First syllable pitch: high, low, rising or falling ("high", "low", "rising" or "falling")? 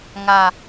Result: low